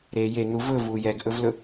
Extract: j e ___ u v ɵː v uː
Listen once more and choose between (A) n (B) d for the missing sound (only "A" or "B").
A